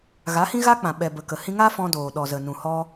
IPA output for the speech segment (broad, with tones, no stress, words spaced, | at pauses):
ɣa˨˦hĩ˦ɣa˦k͡pã˨ ɓɛ˨ bə˨kə˨ hĩ˧ŋa˦fɔ̃˧doː˨ ɗɔ˨zə˨nũ˨ hɔ˧